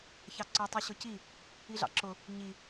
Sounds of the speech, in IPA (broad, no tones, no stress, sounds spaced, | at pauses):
ç ɑ ǀ ɔ tˤ i ɕ ʊ c i | i ɮ ɑ̰ ǁ ʊ | ɲ i